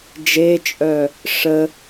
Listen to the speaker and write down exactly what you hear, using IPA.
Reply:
d͡ʒ e t͡ʃʼ œ | ʂ ə

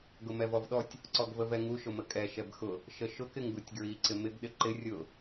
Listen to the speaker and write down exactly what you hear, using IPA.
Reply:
ɡ ʊ m ɛ v ɔ v ɗ ɔ tʲ | ǀ ɔ ɡ v ə v ɛ ŋ u ʃ ʊ m ə kʼ ɛ ʃ ɛ b x ʊ | ʃ ə ʃ ʊ k ɪ ŋ ɡ u tʲ ɡ ɹ i ǀ ɪ m ɪ ɡ ɗ ɪ ǃ ɪ rʲ ʊ

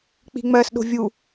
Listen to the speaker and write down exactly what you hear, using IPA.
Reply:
k͡p i̤ ŋ͡m ɜ s ɗ o̤ vʲ u

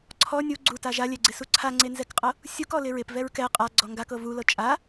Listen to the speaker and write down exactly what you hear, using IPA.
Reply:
ǀʰ ɔ nʲ u ɡ͡ǀ u t a ʒ a lʲ ɛ ɡ͡ǀ ɪ s u ǀʰ a ŋ͡ǀ e n z ɛ k qʼ ɤ | sʲ u k ɔ l ɪ ɹ ɪ p v ɛ ɹ k ɛ qʼ a ɡ͡ǀ ɔ ŋ ɡ a k ɤ v u l ɤ t͡ʃʼ a

